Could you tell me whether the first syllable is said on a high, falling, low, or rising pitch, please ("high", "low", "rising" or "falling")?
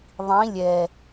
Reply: rising